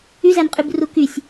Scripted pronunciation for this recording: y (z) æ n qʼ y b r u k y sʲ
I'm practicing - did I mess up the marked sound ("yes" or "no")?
no